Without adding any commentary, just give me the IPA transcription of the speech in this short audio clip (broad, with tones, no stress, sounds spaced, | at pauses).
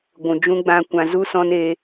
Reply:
ɡʷ ũ˨ d͡ʒ ũ˦ ɡ͡b ã˦ kʷ ã˧ z u˦ s ɔ̃˦ n e˦